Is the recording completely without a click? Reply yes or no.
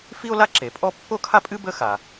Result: no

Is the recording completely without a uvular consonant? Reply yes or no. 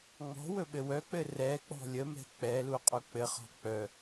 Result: no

